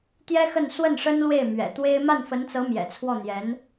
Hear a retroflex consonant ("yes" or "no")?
yes